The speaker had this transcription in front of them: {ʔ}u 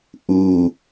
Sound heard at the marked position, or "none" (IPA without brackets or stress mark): ʔ